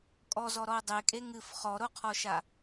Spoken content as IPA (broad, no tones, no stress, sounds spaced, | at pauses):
kʼ ɔ z ɔ ɾ ɔ o̯ dˤ e kʼ e ŋ ɨ f χ ɔ ɾ o qʰ ɔ ʃ a